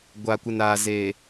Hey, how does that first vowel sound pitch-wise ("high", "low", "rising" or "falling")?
low